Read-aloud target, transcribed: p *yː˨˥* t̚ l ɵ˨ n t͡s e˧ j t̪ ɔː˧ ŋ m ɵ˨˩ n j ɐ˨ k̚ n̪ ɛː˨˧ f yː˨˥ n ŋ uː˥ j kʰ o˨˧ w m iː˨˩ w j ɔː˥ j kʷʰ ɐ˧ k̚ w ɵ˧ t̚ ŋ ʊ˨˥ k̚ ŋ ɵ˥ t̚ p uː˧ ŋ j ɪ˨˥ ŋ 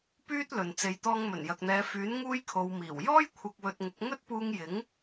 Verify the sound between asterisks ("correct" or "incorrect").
incorrect